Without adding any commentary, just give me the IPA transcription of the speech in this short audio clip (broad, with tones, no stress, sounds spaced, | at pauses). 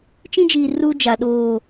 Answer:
t͡ʃ ĩ˦ d͡ʒ iː˨ r u˦ d͡ʒ a˨ ɗ oː˦˨